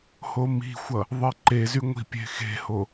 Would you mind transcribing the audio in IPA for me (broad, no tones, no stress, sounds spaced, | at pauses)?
h o m i̤ xʷ ʌ | ðˤ i ǃ e z y ŋʷ i̤ pʲ e̤ x e̤ h o